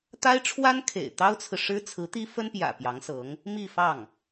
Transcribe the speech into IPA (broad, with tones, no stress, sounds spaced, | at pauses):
t̪ a˥ ɪ̯ ʈ͡ʂʰ w a˥ n kʰ ḛ˨˩ ɪ̯ t̪ ɑ˥ ʊ̯ t͡sʰ ɹ̩˨ ʂ ɻ̩˥ t͡sʰ ɹ̩˧˥ t̪ i˥ f ə˥ n p j ä̰˨˩ p j ɑ˧˥ ŋ s ɤ˧˥ ŋ | m i˥˧ f ɑ˥˩ ŋ